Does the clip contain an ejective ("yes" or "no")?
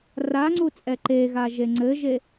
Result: yes